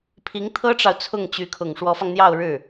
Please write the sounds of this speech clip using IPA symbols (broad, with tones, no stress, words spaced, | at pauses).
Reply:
pʰi˧˥ŋt̪ʰɤ˥ʈ͡ʂɑ˨ʊ̯ t͡sʰʊ˥˩ŋt͡ɕy˧˥kʰʊ˨˩ŋ ʂwɔ˧˥fɑ˧ŋn̪jɑ˥˧ʊ̯ ɻɻ̩˥˩